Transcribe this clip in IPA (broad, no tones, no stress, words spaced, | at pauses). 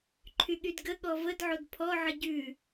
ǃʰyɠydɡəɠɔ vədʕod pʰɔʕə ɟʉ